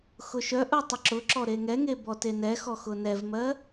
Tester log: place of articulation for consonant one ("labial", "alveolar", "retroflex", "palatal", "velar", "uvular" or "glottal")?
velar